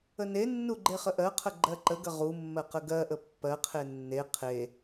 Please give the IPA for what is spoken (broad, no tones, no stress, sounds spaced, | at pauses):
ə n e nː u ɡ͡ǃ e χ ə ʔ ɜ qʰ ə ɡ͡ǃ ɜ ǃ ə ɡ ə ʁ u mː ɜ q ə ɡ ɜ ʔ ə pː ɜ qʰ e nː e qʰ e